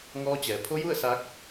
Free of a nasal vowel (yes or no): yes